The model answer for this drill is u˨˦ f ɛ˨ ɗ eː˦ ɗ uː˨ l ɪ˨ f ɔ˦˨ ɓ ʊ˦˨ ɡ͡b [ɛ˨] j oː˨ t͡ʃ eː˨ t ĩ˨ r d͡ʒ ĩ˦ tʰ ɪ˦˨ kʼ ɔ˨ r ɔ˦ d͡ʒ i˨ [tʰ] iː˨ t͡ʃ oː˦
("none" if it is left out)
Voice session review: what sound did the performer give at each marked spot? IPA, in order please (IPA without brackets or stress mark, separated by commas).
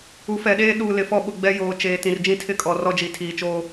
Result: ɛ˦, tʰ